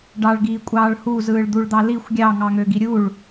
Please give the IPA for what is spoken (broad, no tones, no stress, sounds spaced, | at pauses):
ɖ ɑ ɭ ɡ iː kʷʼ ɑː ɭ h u z ɯː ɭ d̪ u ɭ d̪ ɑ l i xʷ ɡʲ ɑ ŋ ɑ ŋ ø ɡ i ɾʲ u ɭ